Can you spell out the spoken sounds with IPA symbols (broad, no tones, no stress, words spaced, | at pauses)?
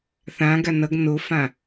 θãɡa nʌɡ nofã